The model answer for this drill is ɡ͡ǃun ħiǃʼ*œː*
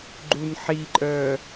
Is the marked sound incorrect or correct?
correct